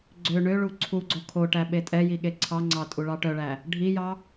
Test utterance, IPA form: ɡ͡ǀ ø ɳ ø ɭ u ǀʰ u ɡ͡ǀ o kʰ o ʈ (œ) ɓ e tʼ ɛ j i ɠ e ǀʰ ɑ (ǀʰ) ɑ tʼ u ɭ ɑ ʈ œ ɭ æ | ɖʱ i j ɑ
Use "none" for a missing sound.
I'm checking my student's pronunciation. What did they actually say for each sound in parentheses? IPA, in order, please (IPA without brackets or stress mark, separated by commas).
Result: æ, ŋ͡ǀ